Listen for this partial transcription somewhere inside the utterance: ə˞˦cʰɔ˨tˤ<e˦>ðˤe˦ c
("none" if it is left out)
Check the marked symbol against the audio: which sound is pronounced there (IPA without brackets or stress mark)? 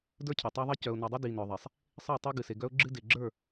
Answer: e˦